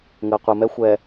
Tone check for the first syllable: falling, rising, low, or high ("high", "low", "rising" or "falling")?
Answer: low